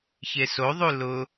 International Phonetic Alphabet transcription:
çesoðˤu lʊ

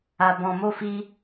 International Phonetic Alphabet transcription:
a˧bɔ̃˧mo˦fi˦

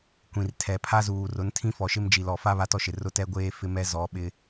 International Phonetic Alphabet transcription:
kʷĩ˨rtʰɛ˨ pʰa˦zuː˨ rʊ˨˦ntʰĩ˦fɔ˨ʃɪ˦m d͡ʒi˨lɔ˨fa˦ βa˦tɔ˦ʃɪ˨rʊ˦ tɛ˦ɡʷeː˦ fɪ˦mɛ˦zɔ˨˦ ɓɪ˦

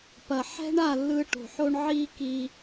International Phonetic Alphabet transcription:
pɐ˨ħɛ̤˦ɳa˦˨lːɯ˧ ʈo̤˨ħo˦ɳ ʕi˦ ki˦

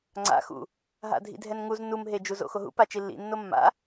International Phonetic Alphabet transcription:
ŋ͡ǀa̰ xṵ | ɦa̰dʱḭdʱɛnŋuz numɦed͡ʒu zo̰xoɦṵpa t͡ʃilːḭnːo mːa̰

